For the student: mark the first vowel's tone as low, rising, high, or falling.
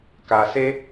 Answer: low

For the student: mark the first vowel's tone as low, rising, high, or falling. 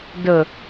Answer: low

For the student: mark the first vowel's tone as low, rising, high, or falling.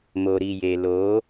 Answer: low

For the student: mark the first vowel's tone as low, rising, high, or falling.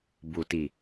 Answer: low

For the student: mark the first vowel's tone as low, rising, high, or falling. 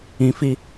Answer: low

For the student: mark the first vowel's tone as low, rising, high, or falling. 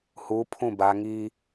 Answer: rising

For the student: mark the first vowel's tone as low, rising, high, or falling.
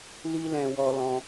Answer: high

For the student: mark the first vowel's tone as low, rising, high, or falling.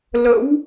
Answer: rising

